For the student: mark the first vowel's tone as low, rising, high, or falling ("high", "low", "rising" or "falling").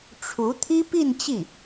rising